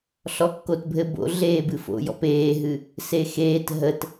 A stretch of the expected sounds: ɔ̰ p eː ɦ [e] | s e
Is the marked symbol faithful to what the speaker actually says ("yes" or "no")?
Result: no